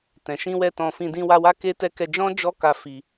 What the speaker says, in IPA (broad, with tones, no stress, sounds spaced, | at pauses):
t ɛ̃˨ ʃ ĩ˧ w ɛ˧ t ɔ̃˧ f ĩ˧ d ĩ˧ w a˧ w a˦ k e˦ t ɛ˧ k ɛ˧ d͡ʒ ɔ̃˦ d͡ʒ ɔ˦ k a˧ f i˧